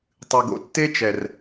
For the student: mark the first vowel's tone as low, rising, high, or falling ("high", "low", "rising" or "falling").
low